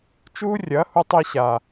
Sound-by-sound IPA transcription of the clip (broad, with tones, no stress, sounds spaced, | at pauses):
t͡ʃ uː˦ rʲ ɐː˨˦ h u˧ tˤ i˧ ɕ a˨